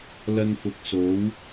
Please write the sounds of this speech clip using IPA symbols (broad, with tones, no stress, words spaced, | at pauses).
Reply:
lɐ˧nfʊ˨˥k̚so˨˥w